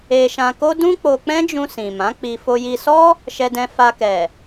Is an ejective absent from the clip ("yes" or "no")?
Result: yes